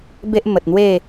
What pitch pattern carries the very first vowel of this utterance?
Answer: high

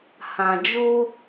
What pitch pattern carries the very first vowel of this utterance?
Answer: low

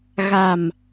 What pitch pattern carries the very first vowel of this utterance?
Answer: low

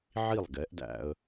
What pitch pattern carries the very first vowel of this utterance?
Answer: falling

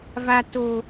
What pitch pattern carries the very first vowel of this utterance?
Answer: high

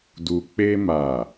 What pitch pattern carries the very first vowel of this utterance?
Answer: low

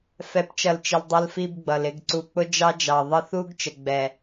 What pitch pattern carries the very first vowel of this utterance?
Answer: rising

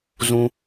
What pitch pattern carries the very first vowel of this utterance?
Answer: high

